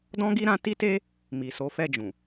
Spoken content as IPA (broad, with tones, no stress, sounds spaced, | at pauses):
d ɔ̃˦ ɡ i˦ ɾ ã˧ t i˦ t e˦ | m i˨ s o˨˦ f ɛ˦˨ d͡ʒ ũ˨